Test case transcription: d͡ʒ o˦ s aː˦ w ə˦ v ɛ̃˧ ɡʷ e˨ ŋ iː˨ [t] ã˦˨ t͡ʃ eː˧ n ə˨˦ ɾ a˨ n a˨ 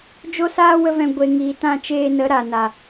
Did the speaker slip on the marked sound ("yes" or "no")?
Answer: no